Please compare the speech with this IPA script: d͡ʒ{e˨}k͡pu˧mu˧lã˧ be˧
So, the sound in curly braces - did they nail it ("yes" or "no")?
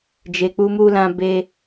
yes